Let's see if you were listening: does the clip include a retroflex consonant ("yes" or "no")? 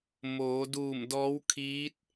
no